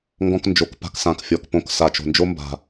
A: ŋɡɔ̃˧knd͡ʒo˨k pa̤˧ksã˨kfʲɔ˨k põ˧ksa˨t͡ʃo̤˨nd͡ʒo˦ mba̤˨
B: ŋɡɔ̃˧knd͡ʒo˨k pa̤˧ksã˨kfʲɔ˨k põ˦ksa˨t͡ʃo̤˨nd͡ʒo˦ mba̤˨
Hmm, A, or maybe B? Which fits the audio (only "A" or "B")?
A